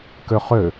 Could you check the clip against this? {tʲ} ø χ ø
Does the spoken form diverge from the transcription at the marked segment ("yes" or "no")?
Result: yes